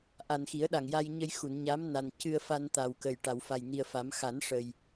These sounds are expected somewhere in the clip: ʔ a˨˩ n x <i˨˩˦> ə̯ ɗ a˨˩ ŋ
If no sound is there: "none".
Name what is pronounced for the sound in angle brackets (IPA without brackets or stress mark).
i˨˩˦